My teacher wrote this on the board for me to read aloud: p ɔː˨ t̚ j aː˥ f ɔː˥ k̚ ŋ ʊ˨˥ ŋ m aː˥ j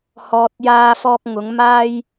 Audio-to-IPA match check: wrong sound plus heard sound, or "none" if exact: p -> h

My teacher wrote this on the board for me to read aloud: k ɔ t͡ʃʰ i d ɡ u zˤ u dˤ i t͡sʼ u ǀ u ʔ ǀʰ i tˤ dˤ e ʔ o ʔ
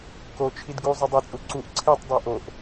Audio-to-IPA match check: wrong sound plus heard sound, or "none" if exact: ɔ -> o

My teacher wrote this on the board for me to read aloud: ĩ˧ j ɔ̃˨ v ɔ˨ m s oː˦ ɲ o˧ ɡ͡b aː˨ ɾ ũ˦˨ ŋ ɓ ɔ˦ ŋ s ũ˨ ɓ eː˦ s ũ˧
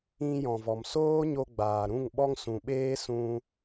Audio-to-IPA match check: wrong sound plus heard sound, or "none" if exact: none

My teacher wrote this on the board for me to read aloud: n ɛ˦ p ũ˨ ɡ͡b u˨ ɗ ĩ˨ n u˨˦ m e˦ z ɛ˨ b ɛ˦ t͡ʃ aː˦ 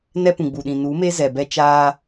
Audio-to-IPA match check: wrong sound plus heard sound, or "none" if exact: none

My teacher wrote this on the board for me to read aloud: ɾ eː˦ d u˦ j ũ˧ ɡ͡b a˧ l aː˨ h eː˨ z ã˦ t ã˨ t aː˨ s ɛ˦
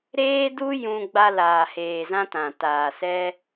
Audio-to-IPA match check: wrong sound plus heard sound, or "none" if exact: none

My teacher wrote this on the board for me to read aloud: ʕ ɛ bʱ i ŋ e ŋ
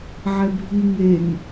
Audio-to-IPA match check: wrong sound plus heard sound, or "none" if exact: none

